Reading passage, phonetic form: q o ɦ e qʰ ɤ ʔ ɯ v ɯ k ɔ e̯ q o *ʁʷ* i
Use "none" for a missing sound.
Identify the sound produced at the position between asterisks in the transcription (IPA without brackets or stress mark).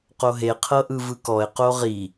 ʁ